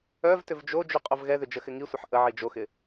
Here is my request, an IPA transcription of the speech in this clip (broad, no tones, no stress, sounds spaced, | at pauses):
œ v t ʏ v d͡ʒ o d͡ʒ y qʼ o v ɣ ɛ ð ʏ d͡ʒ ə x ɪ ŋ i sʷ ɐ ħ ʔ ə ʕ i d͡ʒ o x ɪ